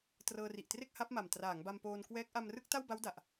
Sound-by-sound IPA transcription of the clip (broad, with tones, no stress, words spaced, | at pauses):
trɤː˧ri˨˩ʔtre˥˩k̚ ha˦˥p̚ma˨˩m traː˩˦ŋba˧mpoː˧nkwɛː˦˥k̚ ʔa˧mrɯ˥˩k̚ ta˥˩wba˦˥w da˨˩ʔ